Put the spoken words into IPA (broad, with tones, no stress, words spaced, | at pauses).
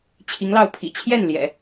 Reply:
t͡ɕʰi˧˥ŋlɑ˥˩ʊ̯ pʰḭ˨˩t͡ɕʰjɛ˥˩n ljɛ̰˨˩˦